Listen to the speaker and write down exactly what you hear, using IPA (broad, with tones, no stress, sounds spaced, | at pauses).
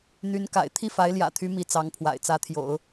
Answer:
n̪ y˧˥ n k a̰˨˩ ɪ̯ t̪ʰ i˥˩ f a˧˥ ɪ̯ l j ä̰˨˩ t̪ʰ y˧˥ m i˧˥ t͡s ɑ˧˥ ŋ pʰ w a̰˨˩ ɪ̯ t͡s ä˧˥ t̪ʰ j o̰˨˩˦ ʊ̯